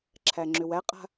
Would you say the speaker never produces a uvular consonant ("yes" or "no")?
no